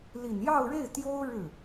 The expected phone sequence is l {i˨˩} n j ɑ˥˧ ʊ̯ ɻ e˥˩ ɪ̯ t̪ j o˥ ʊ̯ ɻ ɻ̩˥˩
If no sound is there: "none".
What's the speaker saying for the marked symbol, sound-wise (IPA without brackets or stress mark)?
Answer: i˨˩